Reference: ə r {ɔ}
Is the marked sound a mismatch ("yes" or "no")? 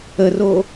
yes